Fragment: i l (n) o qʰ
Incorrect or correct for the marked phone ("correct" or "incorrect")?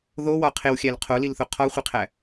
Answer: incorrect